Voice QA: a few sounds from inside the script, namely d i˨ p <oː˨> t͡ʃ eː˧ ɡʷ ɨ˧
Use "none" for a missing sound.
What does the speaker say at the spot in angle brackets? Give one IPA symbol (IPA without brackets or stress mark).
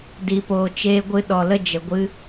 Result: oː˨